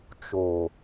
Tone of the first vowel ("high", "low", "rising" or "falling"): low